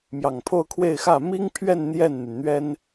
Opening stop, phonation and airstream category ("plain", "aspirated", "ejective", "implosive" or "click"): aspirated